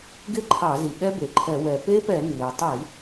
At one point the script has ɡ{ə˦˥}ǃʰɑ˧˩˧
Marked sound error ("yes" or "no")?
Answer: yes